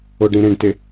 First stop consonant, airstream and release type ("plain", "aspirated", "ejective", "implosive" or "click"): plain